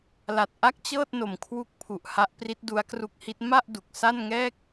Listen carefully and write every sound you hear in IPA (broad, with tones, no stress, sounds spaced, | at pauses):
l a˨˩ t̚ ʔ a˥˩ k̚ t͡ɕ ɤː˥˩ t̚ n o˨˩ m kʰ w u˦˥ k̚ pʰ u˨˩ ʔ h a˦˥ ʔ p r i˦˥ t̚ d u˦˥ a̯ k r u˦˥ k̚ h i˦˥ t̚ m a˥˩ ʔ d u˨˩ k̚ s a˥˩ n ŋ ɛː˥˩ k̚